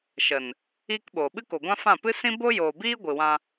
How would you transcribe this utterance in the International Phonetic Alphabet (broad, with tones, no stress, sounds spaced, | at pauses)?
ʃ ə˨ n | iː˦ k ɓ oː˨ ɓ ɨ˦ k o˨ ɡʷ ã˦ f ã˦˨ p ɨ˦ s ĩ˦ b o˦ j oː˨ b iː˦ ɡʷ ɨ˨ w ã˧